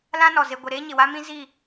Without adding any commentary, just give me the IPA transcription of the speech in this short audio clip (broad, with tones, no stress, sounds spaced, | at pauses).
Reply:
l ã˦ n ɔ˨ z e˨ ɡʷ e˨ ɾ eː˦ ɲ ɪ˨ w a˦ m ĩ˦ z i˦˨